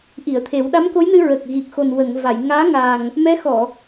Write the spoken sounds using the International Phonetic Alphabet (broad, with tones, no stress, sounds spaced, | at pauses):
ʔ i˨˩˨ ə̯ t̪ʰ e˨˩˦ w ɗ a˧˥ m k o˧˥ j n ɨ˧ ɹ ə˨˩ k̚ ɣ i˨˩ k̚ x o˨˩ n w ə˨˩˨ ŋ v a˨˩˨ j ŋ aː˧˥ ŋ a˨˩ ŋ | m ɛ˧˥ x ɔ˨˩˨